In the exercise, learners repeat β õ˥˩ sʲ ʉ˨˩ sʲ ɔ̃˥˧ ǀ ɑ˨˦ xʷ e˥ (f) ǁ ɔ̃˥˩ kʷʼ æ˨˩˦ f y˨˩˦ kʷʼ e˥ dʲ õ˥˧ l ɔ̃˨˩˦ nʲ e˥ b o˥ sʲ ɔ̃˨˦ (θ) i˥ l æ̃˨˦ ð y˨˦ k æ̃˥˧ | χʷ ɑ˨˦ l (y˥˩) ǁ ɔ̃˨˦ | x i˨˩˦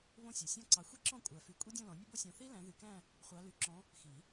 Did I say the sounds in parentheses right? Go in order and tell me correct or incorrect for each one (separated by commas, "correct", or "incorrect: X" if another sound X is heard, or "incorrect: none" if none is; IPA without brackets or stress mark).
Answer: incorrect: none, correct, incorrect: y˨˩˦